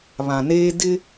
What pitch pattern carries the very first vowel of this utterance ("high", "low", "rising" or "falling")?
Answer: low